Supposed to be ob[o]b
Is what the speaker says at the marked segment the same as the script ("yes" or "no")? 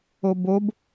yes